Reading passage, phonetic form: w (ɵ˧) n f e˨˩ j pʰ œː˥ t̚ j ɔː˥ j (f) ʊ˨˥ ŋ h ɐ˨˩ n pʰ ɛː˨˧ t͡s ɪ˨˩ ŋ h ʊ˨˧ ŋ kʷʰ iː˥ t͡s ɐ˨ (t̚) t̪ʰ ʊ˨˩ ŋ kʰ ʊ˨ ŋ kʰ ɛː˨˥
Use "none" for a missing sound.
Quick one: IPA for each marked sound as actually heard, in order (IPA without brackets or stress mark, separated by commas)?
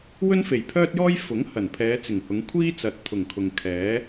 ɵ˥, f, t̚